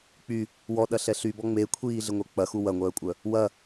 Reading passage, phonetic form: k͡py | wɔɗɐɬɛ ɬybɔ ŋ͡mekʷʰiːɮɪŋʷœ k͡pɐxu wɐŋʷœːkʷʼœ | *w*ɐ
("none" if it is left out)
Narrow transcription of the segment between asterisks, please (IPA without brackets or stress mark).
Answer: w